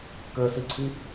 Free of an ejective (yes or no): yes